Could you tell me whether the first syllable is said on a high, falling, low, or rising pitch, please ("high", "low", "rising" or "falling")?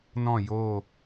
falling